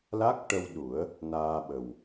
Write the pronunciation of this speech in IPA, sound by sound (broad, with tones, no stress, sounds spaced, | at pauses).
l a˦˥ k̚ ʈ ə˧ w ɗ u˨˩˦ ə̯ | n aː˧ ɓ ə˨˩ w